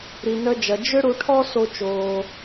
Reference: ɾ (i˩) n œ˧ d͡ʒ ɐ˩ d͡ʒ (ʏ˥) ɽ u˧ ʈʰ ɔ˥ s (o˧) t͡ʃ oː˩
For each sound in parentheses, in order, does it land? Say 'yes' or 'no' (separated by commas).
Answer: yes, yes, yes